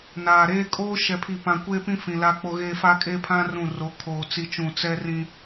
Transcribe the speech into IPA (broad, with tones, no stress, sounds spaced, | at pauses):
n aː˨ ɾ eː˦ kʼ oː˦ ʃ ɛ˨ pʰ i˨ p ã˨ kʷ eː˦ p ĩ˦ f ĩ˨ l aː˦ k͡p o˦ ɣ eː˦ f aː˦ kʼ eː˦ pʰ ã˦ r ũ˦˨ r o˨˦ kʰ oː˨ t͡s i˦ t͡ʃ ũ˦˨ t͡s ɛ˦ r ĩ˦